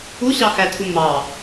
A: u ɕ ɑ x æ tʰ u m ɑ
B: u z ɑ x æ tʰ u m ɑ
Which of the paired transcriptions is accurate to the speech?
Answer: A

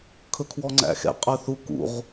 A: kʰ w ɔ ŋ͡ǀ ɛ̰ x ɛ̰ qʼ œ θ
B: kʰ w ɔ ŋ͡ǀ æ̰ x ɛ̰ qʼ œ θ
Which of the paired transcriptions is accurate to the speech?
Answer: B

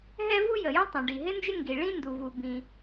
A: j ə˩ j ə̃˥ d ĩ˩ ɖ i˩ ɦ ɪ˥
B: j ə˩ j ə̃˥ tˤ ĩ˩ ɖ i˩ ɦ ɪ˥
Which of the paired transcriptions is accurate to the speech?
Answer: B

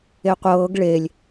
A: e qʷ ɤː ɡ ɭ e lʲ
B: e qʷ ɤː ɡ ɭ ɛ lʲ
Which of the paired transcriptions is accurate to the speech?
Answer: A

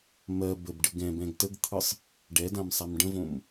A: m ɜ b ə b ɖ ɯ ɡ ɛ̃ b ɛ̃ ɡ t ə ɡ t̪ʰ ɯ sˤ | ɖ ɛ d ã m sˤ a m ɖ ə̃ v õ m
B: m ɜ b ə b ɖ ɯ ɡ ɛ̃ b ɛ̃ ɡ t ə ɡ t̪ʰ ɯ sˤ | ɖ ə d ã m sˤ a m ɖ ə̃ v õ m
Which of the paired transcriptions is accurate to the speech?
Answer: A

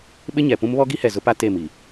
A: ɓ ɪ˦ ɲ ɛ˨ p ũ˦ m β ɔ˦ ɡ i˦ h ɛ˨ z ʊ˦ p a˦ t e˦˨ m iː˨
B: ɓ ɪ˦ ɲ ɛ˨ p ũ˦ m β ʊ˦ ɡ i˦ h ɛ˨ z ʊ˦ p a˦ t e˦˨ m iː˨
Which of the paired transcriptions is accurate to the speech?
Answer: A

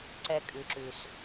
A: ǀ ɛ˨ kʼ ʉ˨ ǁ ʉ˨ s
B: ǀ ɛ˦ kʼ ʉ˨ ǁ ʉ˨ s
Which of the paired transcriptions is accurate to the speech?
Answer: B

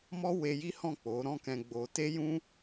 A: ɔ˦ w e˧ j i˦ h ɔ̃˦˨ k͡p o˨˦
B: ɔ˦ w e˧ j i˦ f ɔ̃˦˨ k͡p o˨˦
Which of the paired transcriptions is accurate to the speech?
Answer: A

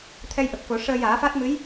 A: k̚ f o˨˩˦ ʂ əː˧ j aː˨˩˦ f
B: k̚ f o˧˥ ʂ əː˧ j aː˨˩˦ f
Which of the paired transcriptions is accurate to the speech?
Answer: A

